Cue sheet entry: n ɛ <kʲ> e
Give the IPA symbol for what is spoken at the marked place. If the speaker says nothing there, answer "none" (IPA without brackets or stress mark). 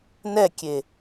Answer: kʲ